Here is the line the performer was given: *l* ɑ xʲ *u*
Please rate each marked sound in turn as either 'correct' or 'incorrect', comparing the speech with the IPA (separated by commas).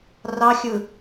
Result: incorrect, incorrect